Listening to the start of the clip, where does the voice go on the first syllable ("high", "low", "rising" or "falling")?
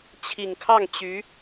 low